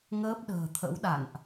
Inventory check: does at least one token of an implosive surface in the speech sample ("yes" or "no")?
yes